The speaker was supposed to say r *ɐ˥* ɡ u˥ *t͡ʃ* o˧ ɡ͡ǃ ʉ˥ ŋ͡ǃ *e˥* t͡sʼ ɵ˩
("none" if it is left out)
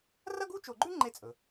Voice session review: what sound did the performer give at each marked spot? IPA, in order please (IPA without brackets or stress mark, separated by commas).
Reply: ɐ˥, t͡ʃ, e˥